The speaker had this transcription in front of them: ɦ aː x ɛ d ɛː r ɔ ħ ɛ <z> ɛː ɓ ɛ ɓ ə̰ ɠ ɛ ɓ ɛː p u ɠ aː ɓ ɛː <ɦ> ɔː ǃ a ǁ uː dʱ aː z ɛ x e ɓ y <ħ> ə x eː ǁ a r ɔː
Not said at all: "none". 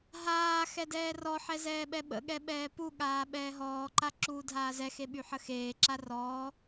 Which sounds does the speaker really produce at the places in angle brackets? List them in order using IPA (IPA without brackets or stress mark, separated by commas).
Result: z, ɦ, ħ